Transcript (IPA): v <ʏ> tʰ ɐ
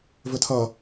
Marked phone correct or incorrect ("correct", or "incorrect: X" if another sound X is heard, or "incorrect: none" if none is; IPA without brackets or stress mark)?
correct